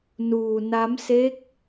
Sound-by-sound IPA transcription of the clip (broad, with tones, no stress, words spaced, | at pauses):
nuː˧na˦˥mse˦˥k̚